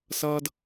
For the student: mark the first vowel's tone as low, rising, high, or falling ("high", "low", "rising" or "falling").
high